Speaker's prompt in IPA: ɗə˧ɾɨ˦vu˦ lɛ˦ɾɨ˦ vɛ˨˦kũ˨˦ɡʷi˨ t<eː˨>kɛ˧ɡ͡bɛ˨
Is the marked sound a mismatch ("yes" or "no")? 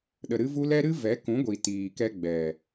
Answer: yes